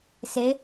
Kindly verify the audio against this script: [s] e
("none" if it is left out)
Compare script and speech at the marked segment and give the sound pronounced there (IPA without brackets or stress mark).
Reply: s